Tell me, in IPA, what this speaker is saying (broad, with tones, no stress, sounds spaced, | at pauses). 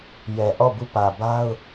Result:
j ɛ˨ ʔ ɔ˦˨ b u˦˨ p ä˨ b a˦ ʊ̯